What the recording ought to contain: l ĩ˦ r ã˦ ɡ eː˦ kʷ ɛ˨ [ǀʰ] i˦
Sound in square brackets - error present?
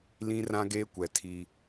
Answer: yes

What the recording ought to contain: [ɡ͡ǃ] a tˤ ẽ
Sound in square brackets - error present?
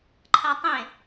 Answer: yes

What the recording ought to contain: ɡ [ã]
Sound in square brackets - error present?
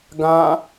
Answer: no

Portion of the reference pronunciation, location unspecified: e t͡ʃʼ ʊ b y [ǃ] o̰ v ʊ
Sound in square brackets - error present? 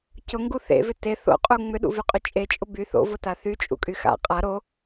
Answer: yes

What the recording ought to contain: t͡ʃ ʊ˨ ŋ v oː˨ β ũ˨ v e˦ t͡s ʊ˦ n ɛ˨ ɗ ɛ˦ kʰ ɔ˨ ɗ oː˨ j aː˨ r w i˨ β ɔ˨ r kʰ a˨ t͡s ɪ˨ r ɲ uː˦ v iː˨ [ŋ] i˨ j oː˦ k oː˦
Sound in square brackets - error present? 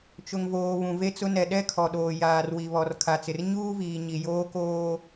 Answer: yes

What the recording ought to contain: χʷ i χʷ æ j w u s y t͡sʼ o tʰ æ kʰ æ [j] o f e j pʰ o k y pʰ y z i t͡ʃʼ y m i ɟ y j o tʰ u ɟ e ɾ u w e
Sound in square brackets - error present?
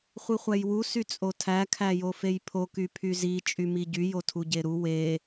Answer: no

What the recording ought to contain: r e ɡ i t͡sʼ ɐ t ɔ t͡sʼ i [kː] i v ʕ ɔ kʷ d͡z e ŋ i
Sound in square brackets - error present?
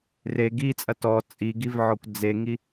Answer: yes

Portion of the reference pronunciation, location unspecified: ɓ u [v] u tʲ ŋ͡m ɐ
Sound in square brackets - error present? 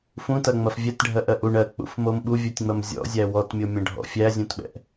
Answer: yes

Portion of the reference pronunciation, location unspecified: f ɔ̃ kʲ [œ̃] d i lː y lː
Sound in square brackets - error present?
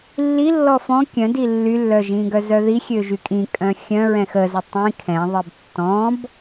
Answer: no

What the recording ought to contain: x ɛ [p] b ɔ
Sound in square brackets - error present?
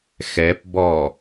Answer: no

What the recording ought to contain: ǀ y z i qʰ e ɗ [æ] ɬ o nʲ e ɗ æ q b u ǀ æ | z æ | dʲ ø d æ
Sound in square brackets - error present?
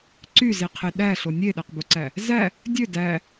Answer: no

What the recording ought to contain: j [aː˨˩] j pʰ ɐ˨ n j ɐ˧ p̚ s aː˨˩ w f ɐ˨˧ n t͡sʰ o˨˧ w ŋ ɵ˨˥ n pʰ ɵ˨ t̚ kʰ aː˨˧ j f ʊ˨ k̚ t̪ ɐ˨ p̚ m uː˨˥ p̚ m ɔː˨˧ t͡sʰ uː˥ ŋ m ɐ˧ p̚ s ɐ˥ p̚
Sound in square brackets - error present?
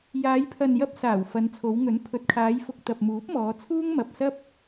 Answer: yes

